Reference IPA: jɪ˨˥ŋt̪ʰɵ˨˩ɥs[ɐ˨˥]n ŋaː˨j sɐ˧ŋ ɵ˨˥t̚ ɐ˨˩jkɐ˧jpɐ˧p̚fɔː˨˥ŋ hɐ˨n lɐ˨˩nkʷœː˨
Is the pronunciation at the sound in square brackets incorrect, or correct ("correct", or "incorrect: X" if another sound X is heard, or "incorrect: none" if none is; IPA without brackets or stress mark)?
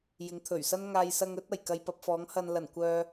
incorrect: ɐ˥